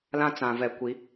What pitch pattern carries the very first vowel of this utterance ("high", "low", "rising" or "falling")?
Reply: high